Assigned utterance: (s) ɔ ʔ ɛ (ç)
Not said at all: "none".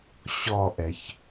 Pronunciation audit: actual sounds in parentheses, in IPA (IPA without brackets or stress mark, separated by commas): ɕ, ç